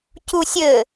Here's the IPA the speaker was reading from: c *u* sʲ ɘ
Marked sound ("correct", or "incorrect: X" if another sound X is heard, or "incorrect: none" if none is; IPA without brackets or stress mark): correct